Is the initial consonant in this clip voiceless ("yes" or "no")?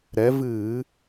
no